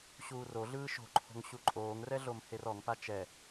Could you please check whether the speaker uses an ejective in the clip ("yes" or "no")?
yes